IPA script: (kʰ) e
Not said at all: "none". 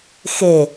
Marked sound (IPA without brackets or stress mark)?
x